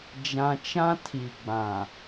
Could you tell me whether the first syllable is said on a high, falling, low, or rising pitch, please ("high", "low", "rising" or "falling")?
low